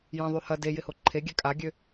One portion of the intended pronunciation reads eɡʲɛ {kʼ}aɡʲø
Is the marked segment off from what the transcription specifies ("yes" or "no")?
no